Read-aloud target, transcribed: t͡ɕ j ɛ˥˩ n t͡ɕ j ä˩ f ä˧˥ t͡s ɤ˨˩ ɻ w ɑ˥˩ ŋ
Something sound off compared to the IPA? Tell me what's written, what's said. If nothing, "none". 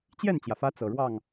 none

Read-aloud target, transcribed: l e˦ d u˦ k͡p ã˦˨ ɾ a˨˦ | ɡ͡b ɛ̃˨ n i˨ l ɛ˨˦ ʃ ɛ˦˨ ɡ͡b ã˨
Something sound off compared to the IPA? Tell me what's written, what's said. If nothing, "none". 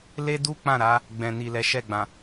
none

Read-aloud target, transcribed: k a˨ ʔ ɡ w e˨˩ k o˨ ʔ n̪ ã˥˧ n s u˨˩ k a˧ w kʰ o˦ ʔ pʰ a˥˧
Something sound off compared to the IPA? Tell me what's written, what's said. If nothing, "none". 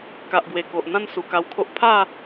none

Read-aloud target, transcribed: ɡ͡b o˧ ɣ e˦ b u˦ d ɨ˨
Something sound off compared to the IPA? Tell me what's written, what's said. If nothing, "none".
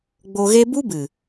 d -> b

